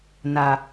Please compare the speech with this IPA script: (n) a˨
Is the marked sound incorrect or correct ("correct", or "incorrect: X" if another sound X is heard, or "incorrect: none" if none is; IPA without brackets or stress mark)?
correct